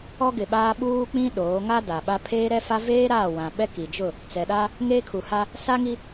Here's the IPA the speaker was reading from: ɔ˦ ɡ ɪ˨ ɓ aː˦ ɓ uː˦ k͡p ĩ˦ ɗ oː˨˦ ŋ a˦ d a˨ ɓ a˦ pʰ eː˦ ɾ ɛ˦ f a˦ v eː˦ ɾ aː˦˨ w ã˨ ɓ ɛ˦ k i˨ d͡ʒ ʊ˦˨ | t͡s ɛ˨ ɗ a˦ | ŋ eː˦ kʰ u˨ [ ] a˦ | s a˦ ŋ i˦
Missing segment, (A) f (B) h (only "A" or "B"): B